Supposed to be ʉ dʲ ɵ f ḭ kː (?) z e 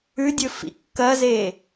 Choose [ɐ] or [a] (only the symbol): ɐ